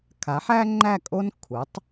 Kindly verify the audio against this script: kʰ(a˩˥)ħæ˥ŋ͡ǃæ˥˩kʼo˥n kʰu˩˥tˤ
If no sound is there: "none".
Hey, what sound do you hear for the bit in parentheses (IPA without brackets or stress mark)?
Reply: a˩˥